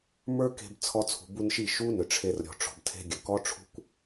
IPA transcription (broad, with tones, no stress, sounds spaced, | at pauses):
m ə˞˦ k e̤˧ b t͡sʰ ɔ˧ t͡sʰ ṳ˨ b u˧ n ʃ i˦˨ ʃ u˦ n ʏ˨ ʈ͡ʂʰ e˧ r ɾʲ ɔ̤˨ ʈ͡ʂ ɔ̤˨ b tʰ e̤˧ ɡʲ ə˨ k ɔ˦ ʈ͡ʂʰ ṳ˦ kʷ